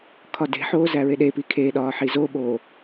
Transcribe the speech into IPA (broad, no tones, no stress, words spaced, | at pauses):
kʰɒde̤ħoː zæɹeɗepi kʰeɗɒː ħizoɓo